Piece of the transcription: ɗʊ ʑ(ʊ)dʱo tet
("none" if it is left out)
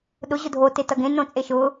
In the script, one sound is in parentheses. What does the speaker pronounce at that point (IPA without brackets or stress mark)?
ʊ